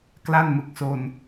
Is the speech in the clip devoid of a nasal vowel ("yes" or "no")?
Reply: yes